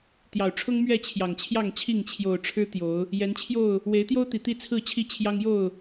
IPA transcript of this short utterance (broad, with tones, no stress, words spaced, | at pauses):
t̪jɑ˨˩ʊ̯ʈ͡ʂʰʊ˦ŋ mɥɛ˥˨ t͡ɕʰjɑ˨˩ŋt͡ɕʰjɑ˥˨ŋt͡ɕʰi˥˨ŋ t͡ɕʰjo˨˩ʊ̯ʈ͡ʂʰɻ̩˦ t̪jo˨˦ʊ̯ | jɛ˨˦nt͡ɕʰjo˥˨ʊ̯ | we˨˦ɪ̯t̪jo˦ʊ̯t̪i˨˩ t̪i˥˨t͡sʰɹ̩˥˨t͡ɕʰi˥˨t͡ɕʰjɑ˦ŋ jo˥˨ʊ̯